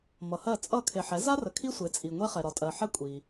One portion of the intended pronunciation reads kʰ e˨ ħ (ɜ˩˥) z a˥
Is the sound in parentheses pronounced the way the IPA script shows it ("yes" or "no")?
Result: no